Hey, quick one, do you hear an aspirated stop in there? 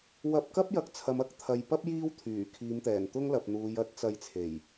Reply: yes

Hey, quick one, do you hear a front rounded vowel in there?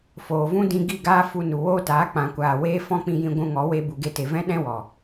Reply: no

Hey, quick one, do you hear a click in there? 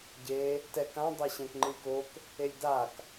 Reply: yes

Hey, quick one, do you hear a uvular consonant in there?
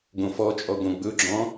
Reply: no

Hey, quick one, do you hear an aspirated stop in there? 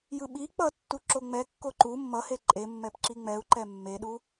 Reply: no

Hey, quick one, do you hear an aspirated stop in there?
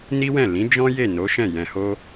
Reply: no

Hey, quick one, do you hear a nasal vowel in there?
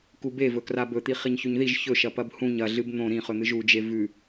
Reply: yes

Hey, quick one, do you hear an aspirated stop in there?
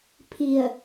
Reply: yes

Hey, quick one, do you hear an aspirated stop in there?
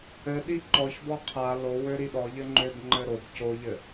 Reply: yes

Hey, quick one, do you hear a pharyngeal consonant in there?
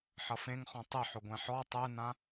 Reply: yes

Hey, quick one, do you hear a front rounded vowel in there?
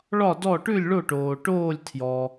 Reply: no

